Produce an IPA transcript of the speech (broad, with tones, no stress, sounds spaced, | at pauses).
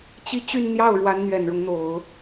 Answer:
t͡ɕ i˥˧ t͡ɕ y˥˧ n n̪ j ɑ˥˩ ʊ̯ ɻ w a˧˥ n n̪ ɥ ɛ˨˩ n ɻ ʊ˦ ŋ n̪ o˨˩˦ ʊ̯